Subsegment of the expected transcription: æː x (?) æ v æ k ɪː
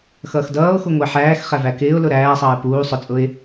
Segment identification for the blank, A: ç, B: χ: B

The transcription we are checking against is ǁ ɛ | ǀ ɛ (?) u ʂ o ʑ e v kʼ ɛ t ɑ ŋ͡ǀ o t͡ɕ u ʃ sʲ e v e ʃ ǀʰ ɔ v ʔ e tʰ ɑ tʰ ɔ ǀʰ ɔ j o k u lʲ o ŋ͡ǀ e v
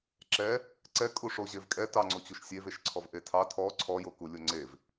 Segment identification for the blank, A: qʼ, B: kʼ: B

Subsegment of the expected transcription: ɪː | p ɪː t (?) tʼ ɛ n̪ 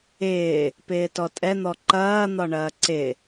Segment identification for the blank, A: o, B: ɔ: B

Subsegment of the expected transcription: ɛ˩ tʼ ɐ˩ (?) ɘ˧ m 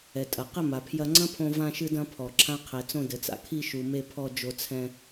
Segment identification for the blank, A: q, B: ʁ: A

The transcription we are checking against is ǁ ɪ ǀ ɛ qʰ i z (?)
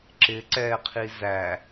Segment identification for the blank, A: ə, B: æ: B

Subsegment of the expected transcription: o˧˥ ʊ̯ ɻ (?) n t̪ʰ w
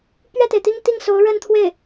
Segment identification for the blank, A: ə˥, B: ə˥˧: A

